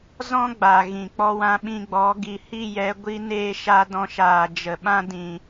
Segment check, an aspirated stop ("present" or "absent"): absent